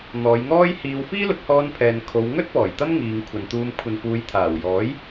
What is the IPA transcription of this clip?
n̪ ɔː˨˧ j ŋ ɔː˥ j h iː˧ w f iː˥ l ʊ˨˥ k̚ h ɔː˧ n pʰ ɛː˨ n kʰ o˨˧ w ŋ ɵ˥ t̚ p ɔː˨˩ j t̪ ɐ˥ m ŋ iː˨ ŋ kʷʰ ɐ˨ n t̪ uː˧ m kʷʰ ɐ˨ n f uː˨˧ j t̪ʰ aː˨˩ w j ɔː˨˥ j

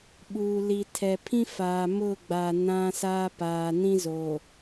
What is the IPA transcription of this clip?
ɓ uː˨ l i˨ tʰ ɛ˨ pʰ ĩ˦ f aː˨ m ʊ˦˨ ɡ͡b a˨ n ã˦ s aː˦ p aː˨ n ĩ˦ z oː˨

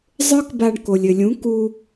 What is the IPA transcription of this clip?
zˤ ə˞˦ k b a˧ ɳ k o˨ lʲ ɘ˨ lʲ ũ˨˦ k u˧

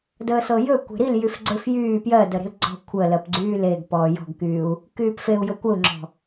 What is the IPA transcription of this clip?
d əː s ɤ j ɵ kʷ e̤ ɾ i l j y f ɡ͡ǀ ɵ f j yː p j ɜ d ə ɾ e̤ l ɡ͡ǀ ɔ̤ kʷʰ ə l ɜ p ɡ͡ǀ yː l e ɡ p ɔː j ɔ̤ ɡ k yː u̯ | k yː p f e u̯ j ɤ kʷ ə u̯ ŋ͡ǁ ɔ̤

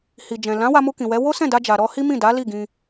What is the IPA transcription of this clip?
h i˨ d͡ʒ ɛ̃˨ l ã˨˦ w a˧ m u˧ k ĩ˨ w ɛ˨˦ w o˦ s ɛ̃˦˨ d a˧ d͡ʒ a˨ ɾ ɔ˧ h i˦ m ĩ˦˨ d a˨˦ l i˦˨ ɡ ĩ˧

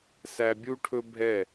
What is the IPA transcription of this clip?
s æ˧ bʲ u˦ ʈʰ ɵ˦ bʱ ɛ˦˨

